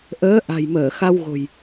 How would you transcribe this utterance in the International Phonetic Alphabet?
ʔəː˨˦ʔa̤˨˩jməː˧˩ xa˧wɣo̤˨˩j

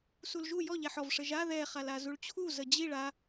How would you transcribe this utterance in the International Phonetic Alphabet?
sulʒu jɔ ʎɛħɔv ʂəʒa ðɛχala zuɭt͡ɕʰu zəd͡ʑiɭ a

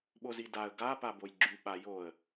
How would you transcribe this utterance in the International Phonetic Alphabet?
ɓozidaə̯ ɡa pabojɡ͡ǁy ɓajoə̯

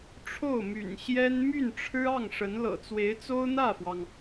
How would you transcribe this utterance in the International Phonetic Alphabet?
ʈ͡ʂʰo˥˩ʊ̯my̰˨˩nɕjɛ˥n my˥˩nʈ͡ʂʰɻ̩˥ɑ˥˩ŋʂə˧˥n lɤ̰˨˩t͡swe˧˥ɪ̯t͡so˥ʊ̯ n̪ä˥˩fwɑ˩ŋ

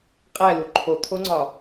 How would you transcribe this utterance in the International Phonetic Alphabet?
qʼælu ǃʰot̪ʰoŋ͡ǀɒ

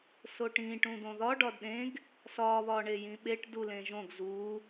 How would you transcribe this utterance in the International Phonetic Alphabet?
soʈĩ ʈũd̪õðɒ ɖɒdɗẽɡ | sɒ βɒɳejĩɓeʈ dulẽʒõɡ zu

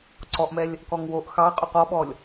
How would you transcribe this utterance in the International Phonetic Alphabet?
ǀɔʔmɛlʲ | kɔŋwoʔ xɑqʼʉq ɔɓɔlʲ

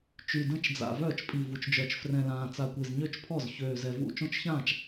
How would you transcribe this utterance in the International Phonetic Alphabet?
t͡ʃy˨˩də̃˥˩t͡ʃd͡za̰˨˩ vœː˥˩t͡ʃpʼi˨˩vu˨˩t͡ʃ d͡ʒœ˨˩t͡ʃ frɛ̃˨˩lãː˨˩t͡sa˨˩kʷe˨˩z ɲø˥˩t͡ʃpʰɔ˥˩z çøː˨˩zɛ˨˩vṵ˥˩ t͡ʃõ˥˩t͡ʃçãː˥˩t͡ʃ

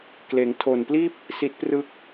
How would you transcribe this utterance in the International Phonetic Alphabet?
kleː˩˦ŋtʰoː˨˩npliː˥˩p̚ | si˦˥t̚prɯ˥˩k̚

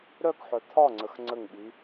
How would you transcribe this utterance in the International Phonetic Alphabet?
ɾœkħœ t̪ʰɒŋ͡ǀəx ŋ͡ǀəŋɓi

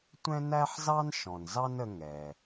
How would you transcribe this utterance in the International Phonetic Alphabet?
tʷɛ̃˥næ˥ħzɑ˥n ʃɔ̃˩nzɑ˥nə˧ ŋɛ˩

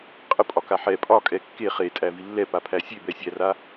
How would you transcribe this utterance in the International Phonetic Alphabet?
qʼəpʼɒ kaħɛ pʼɒ kʼɛkːe χetʼæ vilːɛ papʰæsʲebɛ sʲæra

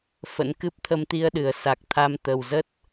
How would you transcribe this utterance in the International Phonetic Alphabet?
fə̰˧˥n kɨ˦˥p̚t̪ʰə˧mt̪i˧ə̯ɗɨ˧˩ə̯ sa˨˩k̚ t̪ʰa˧mt̪ə˨˩wzə˦˥t̚

